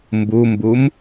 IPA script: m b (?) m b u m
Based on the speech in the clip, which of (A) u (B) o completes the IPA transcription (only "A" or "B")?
A